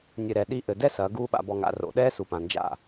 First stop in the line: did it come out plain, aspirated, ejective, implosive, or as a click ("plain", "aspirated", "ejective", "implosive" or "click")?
implosive